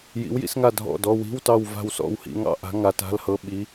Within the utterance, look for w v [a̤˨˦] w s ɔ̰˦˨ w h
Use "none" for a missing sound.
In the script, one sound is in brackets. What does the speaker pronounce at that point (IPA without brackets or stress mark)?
a̤˦˨